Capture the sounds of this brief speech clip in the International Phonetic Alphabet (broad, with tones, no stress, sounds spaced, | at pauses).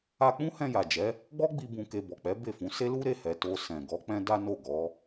a˧ k͡p ũ˦ h ɛ̃˧ j a˨ d͡ʒ ɛ˨˦ | ɡ͡b ɔ˦ ɡ͡b i˧ b ũ˧ k e˧ b ɔ˨ k͡p ɛ˨˦ b e˦˨ f ũ˨˦ s e˦ l u˦ ɾ e˦˨ h ɛ˨ t o˧ s ɛ̃˨ ɡ ɔ˨˦ k͡p ɛ̃˦ d a˦ n o˦˨ ɡ ɔ˨˦